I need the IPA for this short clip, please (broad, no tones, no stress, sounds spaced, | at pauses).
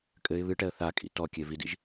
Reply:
kʼ ɘ ɪ̯ β ɨ ʈ ɛ ə̯ θ a kʼ ḭ t ɔ kʲ e v i d ḭ ʒ